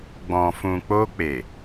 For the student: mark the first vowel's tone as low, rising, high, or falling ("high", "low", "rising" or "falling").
low